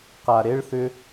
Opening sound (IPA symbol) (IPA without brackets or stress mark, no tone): q